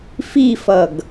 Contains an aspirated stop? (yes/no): no